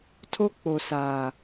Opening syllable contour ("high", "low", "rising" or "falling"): high